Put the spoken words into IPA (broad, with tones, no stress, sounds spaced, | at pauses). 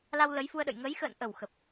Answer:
l a˧ w l ə˨˦ j f u˧ ə̯ ɗ ə̰˧˨ j ŋ ə˨˦ j x ə̰ː˧˨ n ʔ ə˧˩ w x ə˨˩ p̚